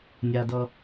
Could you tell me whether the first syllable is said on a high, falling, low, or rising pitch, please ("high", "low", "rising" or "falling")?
low